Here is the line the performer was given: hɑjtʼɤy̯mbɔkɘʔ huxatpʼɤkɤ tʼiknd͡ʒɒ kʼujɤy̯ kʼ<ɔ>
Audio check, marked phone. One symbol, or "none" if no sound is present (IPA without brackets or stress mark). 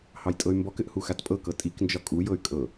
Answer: ɤ